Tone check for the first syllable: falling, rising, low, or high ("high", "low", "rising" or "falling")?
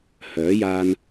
rising